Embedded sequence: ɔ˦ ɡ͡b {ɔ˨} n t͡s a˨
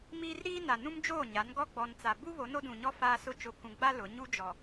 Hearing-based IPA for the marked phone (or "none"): ɔ˨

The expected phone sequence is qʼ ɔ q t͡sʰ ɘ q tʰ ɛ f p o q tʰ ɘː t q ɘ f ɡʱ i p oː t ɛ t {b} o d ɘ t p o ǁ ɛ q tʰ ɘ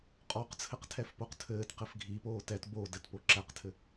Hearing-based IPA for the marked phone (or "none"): b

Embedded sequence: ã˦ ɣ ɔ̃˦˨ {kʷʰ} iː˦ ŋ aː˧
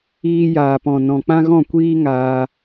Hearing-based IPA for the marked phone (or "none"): kʷ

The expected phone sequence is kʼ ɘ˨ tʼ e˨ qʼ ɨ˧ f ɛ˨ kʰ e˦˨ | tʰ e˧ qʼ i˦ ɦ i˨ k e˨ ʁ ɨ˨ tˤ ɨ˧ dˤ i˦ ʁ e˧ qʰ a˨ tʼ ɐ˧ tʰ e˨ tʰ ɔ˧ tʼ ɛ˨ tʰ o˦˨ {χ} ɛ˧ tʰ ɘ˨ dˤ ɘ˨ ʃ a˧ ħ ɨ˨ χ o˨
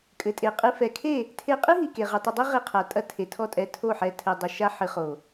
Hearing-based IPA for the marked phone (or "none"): ħ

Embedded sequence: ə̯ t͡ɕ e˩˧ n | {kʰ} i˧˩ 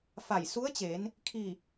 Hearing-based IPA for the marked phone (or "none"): kʰ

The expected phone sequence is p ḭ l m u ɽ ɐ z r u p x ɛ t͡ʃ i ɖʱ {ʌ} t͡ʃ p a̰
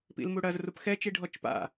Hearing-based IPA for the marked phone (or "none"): ɔ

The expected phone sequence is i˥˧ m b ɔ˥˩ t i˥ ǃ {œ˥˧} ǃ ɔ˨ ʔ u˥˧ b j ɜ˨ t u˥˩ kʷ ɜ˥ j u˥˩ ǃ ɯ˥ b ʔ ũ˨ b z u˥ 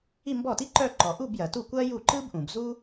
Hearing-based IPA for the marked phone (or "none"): œ˥˧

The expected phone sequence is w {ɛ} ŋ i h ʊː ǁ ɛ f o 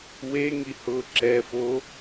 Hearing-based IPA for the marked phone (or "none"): e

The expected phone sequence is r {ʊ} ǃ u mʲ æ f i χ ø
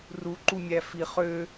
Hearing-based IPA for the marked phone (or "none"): u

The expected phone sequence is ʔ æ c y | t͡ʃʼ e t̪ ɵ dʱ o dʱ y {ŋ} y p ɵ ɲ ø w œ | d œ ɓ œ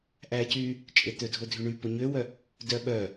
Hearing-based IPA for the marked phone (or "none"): ɳ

